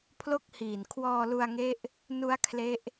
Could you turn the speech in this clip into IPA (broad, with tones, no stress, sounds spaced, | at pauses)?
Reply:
pʰ l o˥˩ k̚ h iː˨˩ n kʰ w ɔː˧ l u˧ a̯ ŋ e˦˥ ʔ | n u˦˥ a̯ kʰ l e˦˥ ʔ